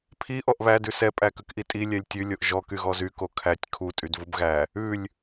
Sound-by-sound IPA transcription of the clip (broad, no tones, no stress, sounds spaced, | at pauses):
pʰ i ʔ ɔ ʔ β æ d ʉ s ɛ pʼ æ k ʉ k ʔ i tʼ i lʲ ɛ lʲ tʲ ʉ lʲ o ʔ ʒ ɔ k y ɣ ɔ z y k o kʰ æ tʲ kʰ u tʼ y d v u b ɣ æ | ʉ lʲ